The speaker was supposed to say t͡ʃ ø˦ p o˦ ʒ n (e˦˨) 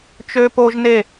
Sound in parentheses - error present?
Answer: no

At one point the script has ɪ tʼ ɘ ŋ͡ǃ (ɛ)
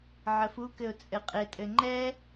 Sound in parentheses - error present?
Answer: no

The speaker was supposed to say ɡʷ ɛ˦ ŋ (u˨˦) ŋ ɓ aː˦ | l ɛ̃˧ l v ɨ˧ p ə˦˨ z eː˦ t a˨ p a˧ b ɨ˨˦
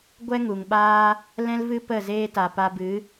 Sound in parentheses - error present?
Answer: yes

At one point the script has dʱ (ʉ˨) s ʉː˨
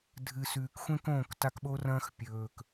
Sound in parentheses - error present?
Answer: yes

